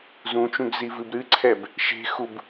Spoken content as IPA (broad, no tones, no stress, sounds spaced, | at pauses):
z ũ t͡ʃ ũ ɡ z i v ɨ b ɾ ɨ ǀʰ ɛ b | ʃ e̤ x u b